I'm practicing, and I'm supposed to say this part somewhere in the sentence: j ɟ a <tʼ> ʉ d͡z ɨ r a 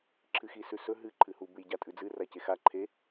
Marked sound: correct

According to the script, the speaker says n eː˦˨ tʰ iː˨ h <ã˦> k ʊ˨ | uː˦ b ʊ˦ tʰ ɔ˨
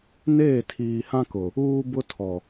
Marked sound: correct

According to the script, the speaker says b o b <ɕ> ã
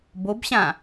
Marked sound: correct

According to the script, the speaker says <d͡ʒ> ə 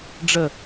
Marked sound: incorrect: ɖ͡ʐ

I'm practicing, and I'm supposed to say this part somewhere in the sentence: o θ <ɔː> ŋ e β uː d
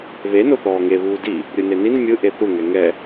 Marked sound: correct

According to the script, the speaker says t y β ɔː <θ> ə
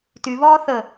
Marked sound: correct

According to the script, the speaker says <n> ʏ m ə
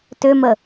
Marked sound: incorrect: t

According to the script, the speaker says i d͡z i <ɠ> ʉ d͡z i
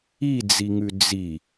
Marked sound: incorrect: ŋ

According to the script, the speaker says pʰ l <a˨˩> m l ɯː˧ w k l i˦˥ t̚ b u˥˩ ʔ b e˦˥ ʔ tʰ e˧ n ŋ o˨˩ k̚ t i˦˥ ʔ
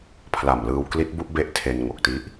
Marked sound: correct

